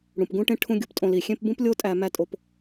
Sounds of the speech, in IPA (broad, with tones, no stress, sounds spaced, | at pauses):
ɽ ũ˩ p ɡ ũ˥ ʈ ẽ˥ ʈʰ ũ˥ ɡʲ u˧ p tʼ õ˧ l i˩ xʲ ẽ˥ p b ũ˥ p lʲ o˥ tʼ æ˧ m æ˥ tʼ o˧ p